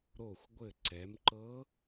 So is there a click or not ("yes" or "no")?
yes